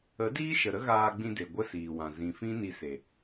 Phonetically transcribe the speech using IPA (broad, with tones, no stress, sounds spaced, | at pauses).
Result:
ə˨˦ d iː˦ ʃ ə˨ ɾ ə˦ ɣ aː˧ ɡ͡b ĩ˧ d e˨ ɡʷ ə˦ s iː˨ w ã˨ z ĩ˨ f ĩ˦ n i˧ s e˨